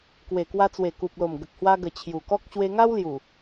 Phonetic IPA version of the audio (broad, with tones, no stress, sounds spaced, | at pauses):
k w e˨˩ k w a˧ t͡s w e˨˩ k u˨ p̚ l o˨˩ m ɡ ə˨ k̚ h w a˧ ɡ ə˨˩ t͡ɕʰ j u˨˩ k ɔ˦ k̚ ɕ w e˧ ŋ a˦ w l j u˨˩